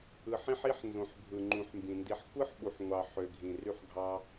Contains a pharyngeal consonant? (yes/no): yes